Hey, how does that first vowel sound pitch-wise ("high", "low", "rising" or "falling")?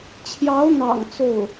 rising